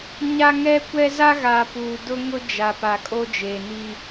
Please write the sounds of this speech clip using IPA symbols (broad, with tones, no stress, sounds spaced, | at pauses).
ɲ a˦ ŋ ɛ˦ kʷ ɛ˦ z a˦ ɣ a˨ p uː˨ d ʊ˦ ŋ ʊ˦ d͡ʒ a˨ p a˨ kʼ o˦ d͡ʒ eː˨ n i˦